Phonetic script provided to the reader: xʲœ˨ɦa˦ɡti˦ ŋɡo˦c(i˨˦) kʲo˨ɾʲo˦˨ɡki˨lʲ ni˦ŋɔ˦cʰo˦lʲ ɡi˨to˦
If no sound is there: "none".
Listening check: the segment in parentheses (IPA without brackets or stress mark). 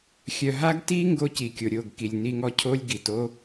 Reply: i˨